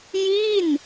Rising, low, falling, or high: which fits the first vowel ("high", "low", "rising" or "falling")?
falling